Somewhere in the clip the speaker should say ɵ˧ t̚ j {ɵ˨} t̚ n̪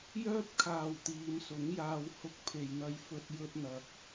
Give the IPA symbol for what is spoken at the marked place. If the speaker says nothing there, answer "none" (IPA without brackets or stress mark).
ɵ˧